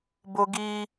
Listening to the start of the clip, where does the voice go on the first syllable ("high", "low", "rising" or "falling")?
high